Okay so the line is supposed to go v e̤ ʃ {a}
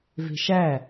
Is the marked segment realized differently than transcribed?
yes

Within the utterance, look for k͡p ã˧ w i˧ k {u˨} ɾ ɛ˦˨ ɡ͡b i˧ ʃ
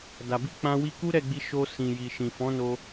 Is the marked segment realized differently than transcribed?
yes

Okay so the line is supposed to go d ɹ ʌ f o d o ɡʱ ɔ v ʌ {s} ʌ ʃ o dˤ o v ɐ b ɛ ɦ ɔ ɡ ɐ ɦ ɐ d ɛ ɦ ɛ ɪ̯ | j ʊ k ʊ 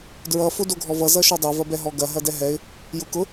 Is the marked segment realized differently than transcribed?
yes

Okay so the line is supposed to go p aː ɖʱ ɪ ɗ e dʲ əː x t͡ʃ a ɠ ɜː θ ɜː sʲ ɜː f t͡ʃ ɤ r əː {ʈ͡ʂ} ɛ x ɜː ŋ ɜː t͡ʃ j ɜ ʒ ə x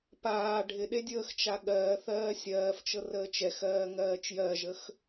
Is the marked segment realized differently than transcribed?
yes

